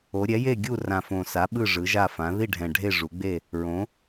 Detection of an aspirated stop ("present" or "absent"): absent